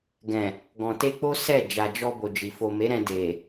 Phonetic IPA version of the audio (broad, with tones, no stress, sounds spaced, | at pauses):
ɡ ɛ̃˨ | ɡ ɔ̃˨ t e˧ k͡p o˦ s ɛ˦˨ d͡ʒ a˨ d͡ʒ ɔ˧ b o˨ d͡ʒ i˨ f o˨ m e˨˦ ɾ ɛ̃˧ d e˨